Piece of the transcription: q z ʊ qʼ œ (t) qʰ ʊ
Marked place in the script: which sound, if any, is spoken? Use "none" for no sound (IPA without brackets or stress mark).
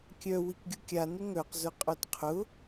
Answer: t